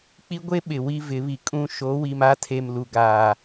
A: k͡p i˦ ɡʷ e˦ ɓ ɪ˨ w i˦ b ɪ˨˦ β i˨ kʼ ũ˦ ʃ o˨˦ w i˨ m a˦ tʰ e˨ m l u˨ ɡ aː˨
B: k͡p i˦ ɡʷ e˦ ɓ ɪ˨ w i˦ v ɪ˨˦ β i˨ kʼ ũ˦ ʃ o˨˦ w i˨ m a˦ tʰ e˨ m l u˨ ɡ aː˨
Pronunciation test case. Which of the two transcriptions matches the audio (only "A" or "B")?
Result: B